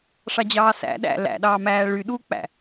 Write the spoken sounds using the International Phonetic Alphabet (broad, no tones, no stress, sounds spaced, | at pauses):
ʂ ɑ d͡ʑ ɑː s æ̰ ɗ æ̰ l æ̰ ɗ ɑː m æː ɭ y ɗ u k͡p æ̰